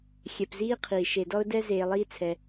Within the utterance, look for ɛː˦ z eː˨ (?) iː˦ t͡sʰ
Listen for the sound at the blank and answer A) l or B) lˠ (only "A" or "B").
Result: B